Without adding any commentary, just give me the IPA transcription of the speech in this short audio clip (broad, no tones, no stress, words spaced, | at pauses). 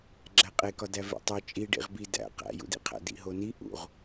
ɡ͡ǁæqʼekɒdæ vḛtˤo t͡ʃʼi ɖḭʁbi dæ̰ qæ̰jṵdḭqʰæ̰ dḭɦoni ʔṵʁ